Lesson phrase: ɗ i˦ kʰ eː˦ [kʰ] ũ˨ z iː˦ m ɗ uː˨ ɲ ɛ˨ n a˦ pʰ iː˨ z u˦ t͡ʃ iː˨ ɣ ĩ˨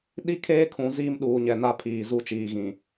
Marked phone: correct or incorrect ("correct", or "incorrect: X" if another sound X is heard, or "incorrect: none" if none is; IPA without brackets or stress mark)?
correct